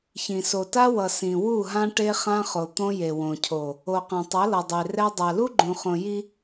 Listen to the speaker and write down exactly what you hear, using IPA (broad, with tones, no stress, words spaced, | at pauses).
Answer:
çĩ˨so˨ta˦wʌ˨ sĩ˨wu˦˨ɦã˦ ʈe˦χã˦χo˨ t̪õ˦je˨wõ˨cʰo˨ | o˨qã˨tˤʌ˨˦ lʌ˨dˤe˨ rɛ˦ dˤa˨lu˦ɡ͡ǃũ˨χõ˨ ji˦